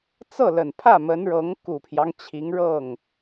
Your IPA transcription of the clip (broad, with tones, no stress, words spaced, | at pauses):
t͡sɤ˥˩lə˨˩npʰä˥˩ mə˧˥nɻɤ˧˥ŋ ku˨˩pʰjɑ˦ŋ t͡ɕʰi˧˥ŋɻɤ˥˩ŋ